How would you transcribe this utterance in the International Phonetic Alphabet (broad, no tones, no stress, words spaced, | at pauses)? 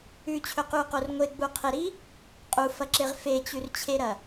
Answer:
ʉt͡ɕʰɵqʉu̯qor ŋʷeɡ͡buqʰeɾi | qʼufɐǁeʁ fet͡ɕʉrt͡ɕʰeɾɐ